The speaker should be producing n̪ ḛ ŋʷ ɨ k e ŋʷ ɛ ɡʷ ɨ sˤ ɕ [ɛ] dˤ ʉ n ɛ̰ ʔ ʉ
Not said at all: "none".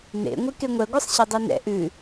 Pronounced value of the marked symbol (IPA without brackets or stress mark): ɨ